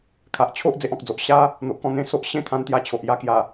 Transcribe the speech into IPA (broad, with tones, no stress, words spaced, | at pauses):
kʰa˨ʔ t͡ɕʰo˦ʔ d͡ze˦ʔɔ̃˨k̚d͡zo˨ʔ ɕa˦ | n̪o˨ʔkɔ̃˧ n̪ẽ˧ so˦ʔ ɕẽ˥˧t̪ʰã˧nt̪ja˧t͡ɕʰo˨ʔ ja˧kja˨˩